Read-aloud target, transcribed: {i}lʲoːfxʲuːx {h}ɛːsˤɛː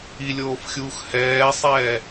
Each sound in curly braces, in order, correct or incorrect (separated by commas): correct, correct